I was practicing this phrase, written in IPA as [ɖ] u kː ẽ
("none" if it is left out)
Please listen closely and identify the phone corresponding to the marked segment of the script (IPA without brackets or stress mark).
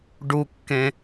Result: ɖ